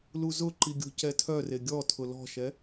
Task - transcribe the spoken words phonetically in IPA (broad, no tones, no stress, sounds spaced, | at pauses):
l u z ʊ ǃ i ɡʲ o̤ c ɛ tʰ œ r e ɡʲ ɔ tʰ ʊ l ɔ̤ ʃ ɛ